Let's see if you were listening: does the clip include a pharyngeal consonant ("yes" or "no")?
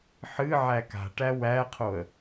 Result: yes